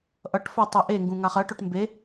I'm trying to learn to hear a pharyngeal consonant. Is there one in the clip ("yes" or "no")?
no